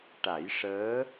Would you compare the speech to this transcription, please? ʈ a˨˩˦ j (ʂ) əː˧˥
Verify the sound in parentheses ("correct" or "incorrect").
correct